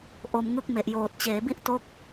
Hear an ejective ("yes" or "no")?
no